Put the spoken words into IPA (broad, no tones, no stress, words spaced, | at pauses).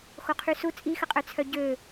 xoqʰysu t͡sʼixəqʼœt͡sʰœ ɟø